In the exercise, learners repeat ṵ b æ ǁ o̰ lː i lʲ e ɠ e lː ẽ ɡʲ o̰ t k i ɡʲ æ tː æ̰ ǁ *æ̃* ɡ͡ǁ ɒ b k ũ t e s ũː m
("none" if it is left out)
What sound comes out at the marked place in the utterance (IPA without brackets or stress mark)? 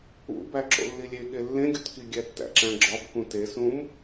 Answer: æ̃